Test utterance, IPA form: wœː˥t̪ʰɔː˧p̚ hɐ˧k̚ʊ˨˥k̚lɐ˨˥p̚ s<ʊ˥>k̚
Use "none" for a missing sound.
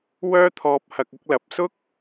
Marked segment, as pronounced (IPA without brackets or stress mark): ʊ˥